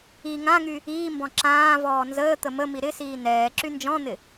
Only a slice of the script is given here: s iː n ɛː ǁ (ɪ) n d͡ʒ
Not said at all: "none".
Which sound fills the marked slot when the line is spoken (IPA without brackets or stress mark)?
y